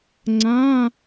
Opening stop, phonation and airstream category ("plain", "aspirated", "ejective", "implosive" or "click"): click